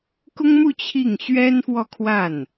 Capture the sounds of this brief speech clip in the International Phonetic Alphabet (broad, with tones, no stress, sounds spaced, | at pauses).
k ʊ˥ ŋ m u˥˧ t͡ɕʰ i˥˩ ŋ ɕ ɥ ɛ˥ n f w ɔ˥˧ kʰ w a˥˩ n